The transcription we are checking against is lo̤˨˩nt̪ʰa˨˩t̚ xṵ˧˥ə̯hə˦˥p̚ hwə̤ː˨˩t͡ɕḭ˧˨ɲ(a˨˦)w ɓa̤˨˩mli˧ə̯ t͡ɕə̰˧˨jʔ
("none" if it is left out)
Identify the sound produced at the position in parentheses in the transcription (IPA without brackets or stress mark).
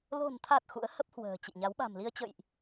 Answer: a˨˦